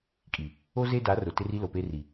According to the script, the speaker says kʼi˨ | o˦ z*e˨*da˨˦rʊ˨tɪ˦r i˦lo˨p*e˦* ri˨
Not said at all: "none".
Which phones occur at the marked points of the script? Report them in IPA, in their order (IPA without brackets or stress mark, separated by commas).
e˦, e˦